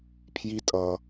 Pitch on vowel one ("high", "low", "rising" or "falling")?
high